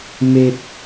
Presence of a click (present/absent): absent